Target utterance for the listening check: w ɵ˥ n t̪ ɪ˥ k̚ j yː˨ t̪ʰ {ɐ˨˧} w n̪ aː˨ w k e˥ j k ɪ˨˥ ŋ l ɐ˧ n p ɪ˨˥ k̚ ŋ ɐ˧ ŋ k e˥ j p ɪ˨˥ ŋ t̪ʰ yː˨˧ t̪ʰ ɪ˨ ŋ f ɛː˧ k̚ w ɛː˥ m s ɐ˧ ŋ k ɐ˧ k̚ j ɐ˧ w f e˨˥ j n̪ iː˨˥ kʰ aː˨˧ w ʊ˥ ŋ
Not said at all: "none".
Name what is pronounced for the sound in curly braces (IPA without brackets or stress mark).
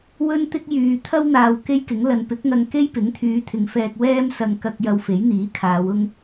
ɐ˥